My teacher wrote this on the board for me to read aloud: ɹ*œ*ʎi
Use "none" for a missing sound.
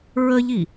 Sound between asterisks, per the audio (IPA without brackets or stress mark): ə